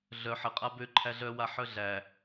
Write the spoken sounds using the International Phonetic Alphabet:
ɮœ ħəqʼa bø ǃʰæɮœwa ħœɮæ

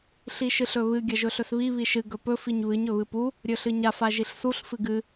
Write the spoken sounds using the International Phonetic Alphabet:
ɬiʃɨɬɵβɨ ɡʲɐʒɵɬɵsβi βiʃɨ ɡɵpɵ fiɲβɨɲ ɵβɨpu | ɾʲɵɬɨɲaf aʒiɬsuɬ fɨɡɨ

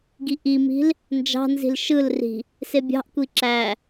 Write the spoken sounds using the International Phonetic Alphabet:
ɡiʔimi̤l | nd͡ʒɑ̤nzi̤l ʃɯlri̤ | sebʲɑ̤ʔkʷi ǁæ

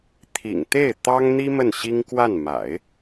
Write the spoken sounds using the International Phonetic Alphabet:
t̪ʰḭ˨˩ŋt̪e˥˩ɪ̯ t̪ɑ˥ŋn̪i˥ mə˥˩nɕi˥ŋ kwa˥˩n ma̰˨˩˦ɪ̯

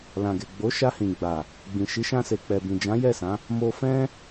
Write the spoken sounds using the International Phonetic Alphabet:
lã˨ɡe˨ ɡ͡bo˨˦ʃa˧hĩ˨ɡ͡ba˨ | ɡ͡bĩ˨ʃi˨˦ʃã˧se˨ k͡pɛ˨bĩ˨d͡ʒã˨˦ jɛ˦˨sã˨˦ | mo˧fɛ̃˦

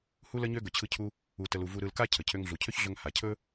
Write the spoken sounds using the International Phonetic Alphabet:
hu˥lə˥ɲø˥ ɡɵ˧t͡ɕʰɯ˥cʰu˥ | u˧tə˧lu˧ vu˧ɾɯ˧lka˥ cʰə˩ cʰø˧ŋɮu˩cʰø˥çɮɵ˧ŋ ha˩cʰɵ˥

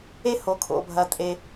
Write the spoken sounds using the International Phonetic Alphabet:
e˥ ho˧kʰo̰˧bʱɐ˧tʼe˧

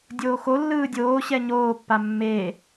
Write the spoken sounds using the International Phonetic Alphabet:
dʲoːxo lːɯːdʲoːɕɛ ɲoːpːa mːe

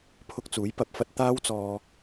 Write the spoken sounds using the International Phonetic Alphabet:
pʰʊ˧k̚t͡suː˨˥j pɐ˨p̚ fɐ˧t̚ t̪aː˧wt͡sɔː˨

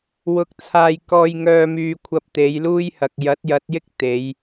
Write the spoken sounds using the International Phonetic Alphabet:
wʊ˧k̚t͡sʰaː˧j kɔː˧jŋœː˧ myː˧kʷʰɐ˧p̚ t̪e˨˧jluː˥jhɐ˨k̚ jɐ˨˥t̚jɐ˨˥t̚jɪ˥k̚ t̪e˨˧j

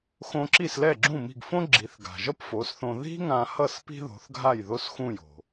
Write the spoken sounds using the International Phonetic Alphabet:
xõ˧ǁi˥˩s lɛ˥˩ɡ͡ǁũ˥˩mi̤˥˩ɡ fõ˥ɡ͡ǁi˩˥θɡa̤˩ʒʌ˥p fo˩˥sθõ˧ ði̤˥ ŋã˧hʌ˥˩s pi̤˥ðo̤˩˥θɡʱa˥˩j ðo˥sxũ˥˩jo̤˩

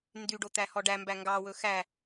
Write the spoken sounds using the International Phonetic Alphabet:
ndyɖot̪æhɔ ɖæmbæ ŋɡɑwɵ xæ

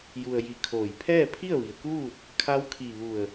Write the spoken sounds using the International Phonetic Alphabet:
ju˧ə̯ji˧kʰoː˧˩j pʰɛː˥˨pʰi˥˨ə̯ʋi˩ə̯kuː˥˨t̚ | kʰa˧˥wkʰi˧˩ ʋu˧˩ə̯

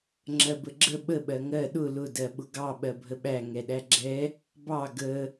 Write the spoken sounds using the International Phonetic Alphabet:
ŋ͡ǁɜbəɡ͡ǁə ɓə ɓɜŋɜ ɗʊ lʊ dɜɓʊɡɑ ɓɜbʱəɓæ ŋɛɗæɡ͡ǁɛ | bɑ ɡə

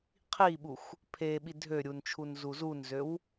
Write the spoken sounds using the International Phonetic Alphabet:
qʰiɓuxʷ | pʰe ɓidʱøɾʲunt͡ʃʰun zuzunzøw

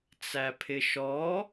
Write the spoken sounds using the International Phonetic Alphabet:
t͡sæpʰɪʃɔ

